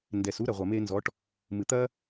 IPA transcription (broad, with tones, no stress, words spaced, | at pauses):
ndɛ˨su˦ ɾɐ˨ʁʷɐ˨me˧nzɔ˨˦ʈ | mɨ˨t̪ɐ˦